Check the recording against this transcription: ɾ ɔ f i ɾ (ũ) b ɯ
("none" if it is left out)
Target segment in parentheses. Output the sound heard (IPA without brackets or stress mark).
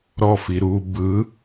u